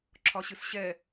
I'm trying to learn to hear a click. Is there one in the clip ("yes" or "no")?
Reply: yes